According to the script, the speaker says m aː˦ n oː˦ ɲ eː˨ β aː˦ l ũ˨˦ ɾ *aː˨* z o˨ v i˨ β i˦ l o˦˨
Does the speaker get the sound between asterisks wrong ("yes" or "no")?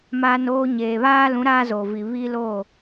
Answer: yes